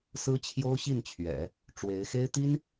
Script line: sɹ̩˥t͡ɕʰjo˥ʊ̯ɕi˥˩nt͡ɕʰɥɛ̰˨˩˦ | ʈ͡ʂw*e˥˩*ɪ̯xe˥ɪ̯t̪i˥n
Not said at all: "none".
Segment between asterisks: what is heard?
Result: e˧˥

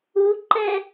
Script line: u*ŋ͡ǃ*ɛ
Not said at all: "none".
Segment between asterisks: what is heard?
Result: ǃ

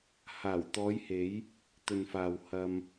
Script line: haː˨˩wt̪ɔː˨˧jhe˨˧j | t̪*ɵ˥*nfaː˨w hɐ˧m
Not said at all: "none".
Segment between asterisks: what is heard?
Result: ɵ˨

